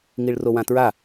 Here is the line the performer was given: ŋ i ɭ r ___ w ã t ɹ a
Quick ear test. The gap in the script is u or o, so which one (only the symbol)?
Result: o